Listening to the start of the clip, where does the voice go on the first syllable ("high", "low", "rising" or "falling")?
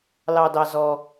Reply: low